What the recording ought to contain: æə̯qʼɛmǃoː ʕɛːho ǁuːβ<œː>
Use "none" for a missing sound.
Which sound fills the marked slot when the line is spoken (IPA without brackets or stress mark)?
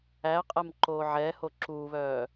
œː